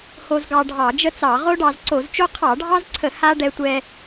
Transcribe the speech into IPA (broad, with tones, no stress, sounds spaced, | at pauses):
h o˧ z ɡ ɑ˧ ɖʱ ɑ˧˩˧ d͡ʒ ə˥ t͡s ɑ˧˩˧ ʁ o˥ ɖ ɑ˧ z ǀ o˧˩˧ z t͡ʃ o˥ qʰ ɑ˧˩˧ ɖʱ ɑ˥ z ǀʰ ə˧˩˧ h a˥ ɖ ɛ˧ tʷ ɛ˧